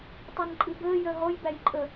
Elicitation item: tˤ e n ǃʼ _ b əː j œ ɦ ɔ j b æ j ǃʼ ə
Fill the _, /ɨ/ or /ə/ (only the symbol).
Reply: ɨ